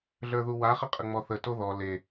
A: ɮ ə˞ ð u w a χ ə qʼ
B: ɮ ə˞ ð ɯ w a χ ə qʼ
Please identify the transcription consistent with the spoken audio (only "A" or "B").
A